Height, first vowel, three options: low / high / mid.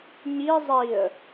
high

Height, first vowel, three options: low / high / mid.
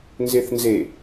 mid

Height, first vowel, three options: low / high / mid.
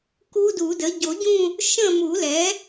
high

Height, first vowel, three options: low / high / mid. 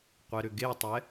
mid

